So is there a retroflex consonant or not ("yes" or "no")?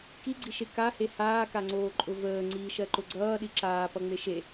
no